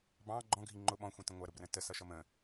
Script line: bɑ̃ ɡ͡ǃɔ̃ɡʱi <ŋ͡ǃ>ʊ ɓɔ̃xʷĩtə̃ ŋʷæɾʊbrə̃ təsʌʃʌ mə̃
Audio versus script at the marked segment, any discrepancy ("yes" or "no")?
no